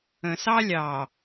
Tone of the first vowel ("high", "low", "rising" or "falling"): low